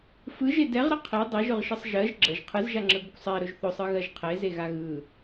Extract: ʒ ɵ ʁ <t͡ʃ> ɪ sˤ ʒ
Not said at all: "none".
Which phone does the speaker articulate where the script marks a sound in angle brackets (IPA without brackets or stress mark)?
ʃ